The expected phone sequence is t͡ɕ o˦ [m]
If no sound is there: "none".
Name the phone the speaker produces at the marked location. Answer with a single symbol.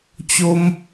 m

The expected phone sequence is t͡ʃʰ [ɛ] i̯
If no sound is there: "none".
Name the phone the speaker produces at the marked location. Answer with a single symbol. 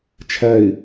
ɛ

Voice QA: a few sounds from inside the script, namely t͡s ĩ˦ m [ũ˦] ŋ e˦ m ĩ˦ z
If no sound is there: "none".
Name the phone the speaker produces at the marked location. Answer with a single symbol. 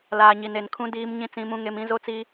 ũ˦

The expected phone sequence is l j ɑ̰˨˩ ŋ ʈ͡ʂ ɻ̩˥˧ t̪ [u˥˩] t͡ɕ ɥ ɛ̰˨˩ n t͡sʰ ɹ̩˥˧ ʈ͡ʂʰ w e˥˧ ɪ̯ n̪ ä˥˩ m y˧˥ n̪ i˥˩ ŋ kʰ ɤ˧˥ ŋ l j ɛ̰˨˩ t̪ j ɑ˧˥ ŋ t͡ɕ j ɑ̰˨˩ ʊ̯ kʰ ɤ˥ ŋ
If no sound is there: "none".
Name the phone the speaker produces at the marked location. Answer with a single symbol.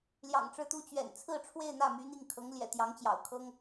u˥˩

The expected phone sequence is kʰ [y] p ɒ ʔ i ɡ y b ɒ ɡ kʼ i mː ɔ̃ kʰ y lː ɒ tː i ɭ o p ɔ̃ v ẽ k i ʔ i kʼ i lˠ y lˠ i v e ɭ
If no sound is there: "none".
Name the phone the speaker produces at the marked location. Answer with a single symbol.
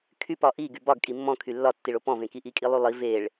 y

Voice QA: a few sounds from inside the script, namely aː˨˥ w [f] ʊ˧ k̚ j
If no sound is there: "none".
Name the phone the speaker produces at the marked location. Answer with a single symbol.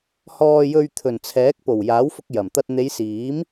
f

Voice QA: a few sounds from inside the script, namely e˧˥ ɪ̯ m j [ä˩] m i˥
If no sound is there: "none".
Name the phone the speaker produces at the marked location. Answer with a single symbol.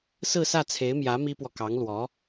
ä˧˥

